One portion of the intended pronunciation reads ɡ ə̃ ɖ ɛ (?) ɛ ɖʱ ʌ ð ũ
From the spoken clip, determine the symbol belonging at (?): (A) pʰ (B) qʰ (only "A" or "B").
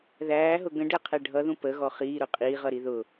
B